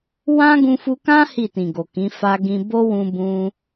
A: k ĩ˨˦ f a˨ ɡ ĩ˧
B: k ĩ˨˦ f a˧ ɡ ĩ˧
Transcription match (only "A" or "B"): B